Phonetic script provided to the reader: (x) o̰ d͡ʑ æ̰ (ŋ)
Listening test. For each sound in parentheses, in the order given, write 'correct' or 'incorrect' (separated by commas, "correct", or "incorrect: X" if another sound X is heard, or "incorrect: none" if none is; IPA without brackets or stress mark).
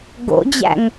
incorrect: ɡ, correct